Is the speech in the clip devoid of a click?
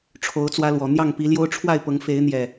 yes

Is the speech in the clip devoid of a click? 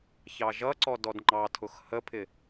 no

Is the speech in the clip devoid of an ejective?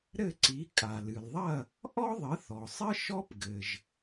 no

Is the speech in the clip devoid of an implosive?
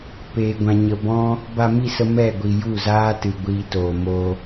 yes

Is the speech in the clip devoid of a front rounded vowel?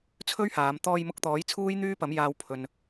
no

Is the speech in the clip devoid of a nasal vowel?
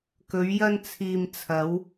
yes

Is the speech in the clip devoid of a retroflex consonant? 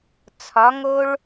no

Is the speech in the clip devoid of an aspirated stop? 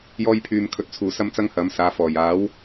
no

